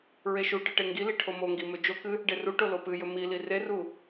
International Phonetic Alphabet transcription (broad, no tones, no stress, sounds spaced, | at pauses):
ɹ e ʃ u ʈ ɨ ʈ e ŋ ɡ i l i ʈʰ o m o ŋ ɡ i m ɵ d͡ʒ o k ɨ | ɖ e r u ʈ o l o p ɨ j ɵ m i l i r e r u